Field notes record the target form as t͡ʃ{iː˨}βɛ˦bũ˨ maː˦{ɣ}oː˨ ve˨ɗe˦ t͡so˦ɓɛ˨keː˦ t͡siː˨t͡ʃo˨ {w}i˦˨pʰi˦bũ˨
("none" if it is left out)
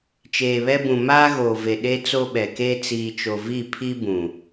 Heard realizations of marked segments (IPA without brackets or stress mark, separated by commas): eː˨, ɣ, v